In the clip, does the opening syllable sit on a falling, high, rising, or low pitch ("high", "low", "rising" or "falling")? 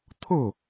falling